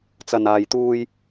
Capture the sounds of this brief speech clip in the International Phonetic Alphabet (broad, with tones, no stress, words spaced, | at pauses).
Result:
t͡sɐ˨naː˨jt̪uː˧j